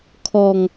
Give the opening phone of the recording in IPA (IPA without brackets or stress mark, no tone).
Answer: kʰ